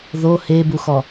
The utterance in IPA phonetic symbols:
ð o h e b u x ɔ

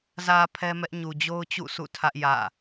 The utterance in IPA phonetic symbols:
z ä˨ pʰ ɛ˦ m ɛ˦ ʔ ɲ u˨ d͡ʑ o˦ ʊ̯ t͡ɕ ṵ˦˨ sʰ ṵ˦˨ tʰ ä˦ ʔ j ä̰˦˨

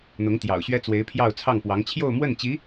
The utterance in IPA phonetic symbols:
n̪ ʊ˧˥ ŋ t̪ j ɑ̰˨˩ ʊ̯ ɕ ɥ ɛ˥ t͡s w e˧˥ ɪ̯ pʰ j ɑ˥˧ ʊ̯ t͡sʰ ɑ˥˩ ŋ p w ɑ˧˥ ŋ t͡ɕʰ j o˥˧ ʊ̯ m w ə˥˩ n t͡ɕ i˧˥

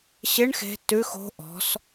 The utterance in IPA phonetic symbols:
ɕ ɪ ɳ x e̤ t ʉ x o̤ ʔ ɔ̤ s

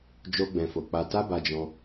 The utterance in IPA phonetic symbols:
d͡ʒ o˦ ɡ͡b ɛ̃˧ f o˧ k͡p a˧ t a˦ b a˧ d͡ʒ ɔ̃˧

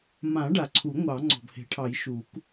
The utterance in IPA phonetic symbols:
m ã˨˩˦ ɖ a˨˩ ǀʰ u˨˩˦ ŋʷ ɑ˨˩˦ ŋ͡ǀ ɔ̤˨˩ b h e̤˨˩˦ ʈʰ ɑ˨˩˦ j ʃ u˨˩˦ k

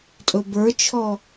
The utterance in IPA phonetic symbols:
tʼ ɵ b ə˞ t͡ʃʰ ɔ

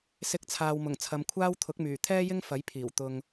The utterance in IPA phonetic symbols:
s ɪ˨˥ k̚ t͡sʰ aː˨ w m ʊ˨˩ ŋ t͡sʰ ɐ˨˧ m kʷʰ aː˥ w t̪ʰ ʊ˨˥ k̚ m yː˨˩ t̪ʰ ɛː˥ j ɪ˥ ŋ f ɐ˨˥ j pʰ iː˨˩ w t̪ ʊ˨ ŋ

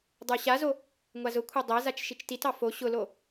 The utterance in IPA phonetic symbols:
dˤ ə˞ ɕ a z o | ŋʷ a z ʊ kʷʰ a dˤ æ z a t͡ʃ ʃ i t͡ʃ t i t ɑ f o ɕ ʊ l o

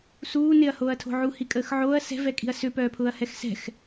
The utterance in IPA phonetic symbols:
s uː n ɪ ɐ̯ h oː ɐ̯ tʰ o̤ ʕ u h i kʼ əː x ʕ oː ɐ̯ s ɛ̤ v ɛ kʼ i̤ ɐ̯ s ʏ p œː pʰ ʊː ɐ̯ h ɛ x s ɛ̤ x

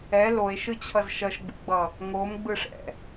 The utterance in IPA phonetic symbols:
ɛ l o e̯ ʃ ɯ t͡ɕʰ ʌ z ʃ ʌ ʃ ɡ͡b ṵ ɡ͡b ʌ | ŋ o m ɡ͡b ɯ ʂ ɛ̰

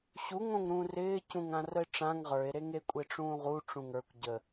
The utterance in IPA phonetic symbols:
ɕ u ŋ õ ŋ ɾ ũː r ɪː c ũ ŋ ã r ə e̯ ʈ͡ʂ ã ŋ ʁ ə˞ e̯ ɾ e ŋ e kʷʼ e ʈ͡ʂ ũː ʁ u ʈ͡ʂ ũ ŋ ə˞ kʷ ɟ ə

